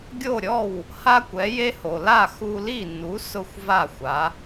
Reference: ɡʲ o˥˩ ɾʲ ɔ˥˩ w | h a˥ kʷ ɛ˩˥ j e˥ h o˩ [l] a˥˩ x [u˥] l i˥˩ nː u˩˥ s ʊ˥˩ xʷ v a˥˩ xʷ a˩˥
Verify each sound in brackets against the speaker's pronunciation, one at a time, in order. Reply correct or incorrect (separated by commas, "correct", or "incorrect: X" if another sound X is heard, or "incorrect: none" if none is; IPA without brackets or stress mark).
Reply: correct, incorrect: u˧